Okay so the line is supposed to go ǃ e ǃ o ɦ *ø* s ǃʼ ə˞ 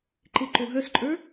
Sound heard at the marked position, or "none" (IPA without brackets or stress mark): œ